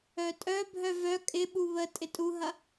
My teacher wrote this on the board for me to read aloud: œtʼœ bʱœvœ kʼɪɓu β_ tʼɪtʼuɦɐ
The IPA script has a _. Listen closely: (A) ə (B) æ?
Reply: A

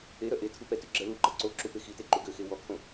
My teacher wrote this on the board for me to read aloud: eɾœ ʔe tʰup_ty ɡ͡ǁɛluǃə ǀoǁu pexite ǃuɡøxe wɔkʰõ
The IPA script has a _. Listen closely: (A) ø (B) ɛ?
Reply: B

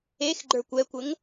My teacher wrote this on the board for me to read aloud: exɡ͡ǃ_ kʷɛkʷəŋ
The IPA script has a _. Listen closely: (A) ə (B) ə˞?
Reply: B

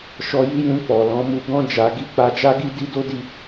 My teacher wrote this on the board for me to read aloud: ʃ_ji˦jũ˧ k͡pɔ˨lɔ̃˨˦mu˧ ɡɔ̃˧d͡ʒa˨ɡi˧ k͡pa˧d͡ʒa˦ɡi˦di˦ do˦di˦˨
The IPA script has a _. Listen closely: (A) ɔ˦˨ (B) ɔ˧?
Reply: B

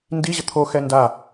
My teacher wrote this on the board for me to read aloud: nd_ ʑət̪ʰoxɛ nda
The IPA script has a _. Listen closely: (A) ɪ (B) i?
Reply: B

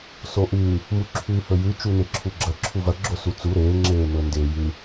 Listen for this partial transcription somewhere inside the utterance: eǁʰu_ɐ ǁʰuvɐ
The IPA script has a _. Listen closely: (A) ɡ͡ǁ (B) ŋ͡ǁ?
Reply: A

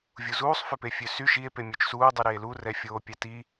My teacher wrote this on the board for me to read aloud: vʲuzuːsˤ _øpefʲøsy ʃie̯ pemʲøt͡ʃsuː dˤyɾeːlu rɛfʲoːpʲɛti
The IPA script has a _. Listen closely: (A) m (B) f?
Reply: B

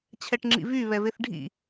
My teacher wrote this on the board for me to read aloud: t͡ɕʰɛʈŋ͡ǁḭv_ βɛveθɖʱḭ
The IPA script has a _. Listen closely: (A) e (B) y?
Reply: B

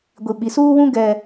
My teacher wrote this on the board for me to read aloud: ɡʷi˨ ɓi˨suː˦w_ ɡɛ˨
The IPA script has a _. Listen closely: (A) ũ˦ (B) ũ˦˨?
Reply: A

